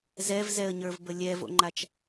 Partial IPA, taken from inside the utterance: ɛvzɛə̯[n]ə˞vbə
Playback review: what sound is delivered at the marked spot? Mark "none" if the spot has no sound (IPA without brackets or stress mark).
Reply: ɲ